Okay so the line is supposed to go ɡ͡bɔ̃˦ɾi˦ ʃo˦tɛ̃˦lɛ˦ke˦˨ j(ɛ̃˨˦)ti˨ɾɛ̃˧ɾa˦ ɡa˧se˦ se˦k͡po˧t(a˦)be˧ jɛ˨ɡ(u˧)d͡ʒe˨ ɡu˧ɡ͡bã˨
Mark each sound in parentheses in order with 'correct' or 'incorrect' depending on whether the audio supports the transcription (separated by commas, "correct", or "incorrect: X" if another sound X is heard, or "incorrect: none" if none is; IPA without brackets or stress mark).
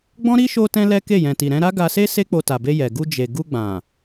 incorrect: ɛ̃˨, incorrect: a˨, correct